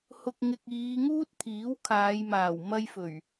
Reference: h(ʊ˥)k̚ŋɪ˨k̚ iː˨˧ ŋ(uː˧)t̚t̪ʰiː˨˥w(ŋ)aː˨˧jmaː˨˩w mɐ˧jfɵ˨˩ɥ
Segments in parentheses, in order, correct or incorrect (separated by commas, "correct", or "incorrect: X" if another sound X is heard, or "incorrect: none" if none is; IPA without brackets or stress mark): incorrect: ʊ˨, incorrect: uː˥, incorrect: kʰ